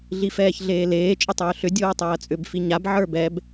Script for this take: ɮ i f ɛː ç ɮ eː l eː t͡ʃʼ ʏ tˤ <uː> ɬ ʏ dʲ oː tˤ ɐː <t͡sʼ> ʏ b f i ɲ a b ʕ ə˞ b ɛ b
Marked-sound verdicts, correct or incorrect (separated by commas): incorrect, correct